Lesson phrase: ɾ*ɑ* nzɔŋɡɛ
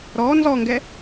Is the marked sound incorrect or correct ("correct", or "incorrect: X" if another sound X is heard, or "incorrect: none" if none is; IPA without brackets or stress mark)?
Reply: incorrect: ɔ